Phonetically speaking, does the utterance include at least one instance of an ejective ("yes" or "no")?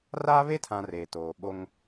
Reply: no